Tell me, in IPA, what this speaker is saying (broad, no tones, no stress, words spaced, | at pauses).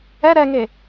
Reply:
ɛ ɾɛŋe